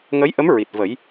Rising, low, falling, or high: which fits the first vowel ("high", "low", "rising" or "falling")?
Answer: rising